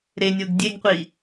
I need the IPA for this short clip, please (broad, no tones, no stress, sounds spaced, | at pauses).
ɾ e nʲ o ɡ dʲ e ɡ qʷ i